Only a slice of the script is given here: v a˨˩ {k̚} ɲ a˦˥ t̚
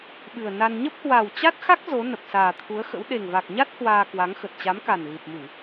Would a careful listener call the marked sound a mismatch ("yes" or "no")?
no